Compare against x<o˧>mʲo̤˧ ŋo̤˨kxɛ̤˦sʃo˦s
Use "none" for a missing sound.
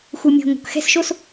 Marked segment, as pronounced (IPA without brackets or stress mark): u˧